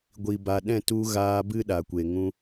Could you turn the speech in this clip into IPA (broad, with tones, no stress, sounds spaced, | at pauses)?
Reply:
ɡʷ i˨ b a˨ ɗ ɛ̃˦˨ t u˧ ɣ aː˧ b ɨ˦ ɗ a˨ kʷ e˨ ŋ ũ˧